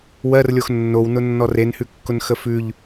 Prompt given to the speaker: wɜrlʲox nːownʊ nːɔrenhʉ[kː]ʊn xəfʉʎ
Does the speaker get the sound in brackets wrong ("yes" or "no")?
no